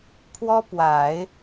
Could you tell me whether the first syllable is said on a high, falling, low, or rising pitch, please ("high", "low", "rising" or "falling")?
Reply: high